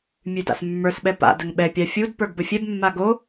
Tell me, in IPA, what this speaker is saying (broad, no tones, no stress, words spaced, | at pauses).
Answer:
mʲʉda̰smːə˞sɓɛ pa̰ dəŋɓɛpʲa fʲud pə˞ɡbəfʲɛbmːa ɡo